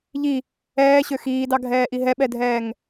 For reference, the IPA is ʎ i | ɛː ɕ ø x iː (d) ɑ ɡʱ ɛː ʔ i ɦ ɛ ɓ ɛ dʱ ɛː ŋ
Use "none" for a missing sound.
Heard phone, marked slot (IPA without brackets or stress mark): d